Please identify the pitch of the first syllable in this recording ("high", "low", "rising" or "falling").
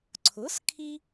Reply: rising